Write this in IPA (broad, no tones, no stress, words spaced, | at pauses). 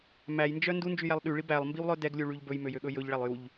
mæjnd͡ʒœ ndund͡ʒyjælˠ ɗyɭi bælˠmbiwlˠœ dɛɡlʲuɭyʎ bɵjmøjøɠɵ jɵʎɭælˠ juʎ